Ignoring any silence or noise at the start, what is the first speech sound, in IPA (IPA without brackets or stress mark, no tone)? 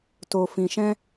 t